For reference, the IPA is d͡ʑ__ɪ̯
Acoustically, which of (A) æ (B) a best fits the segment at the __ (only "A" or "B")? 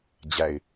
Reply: A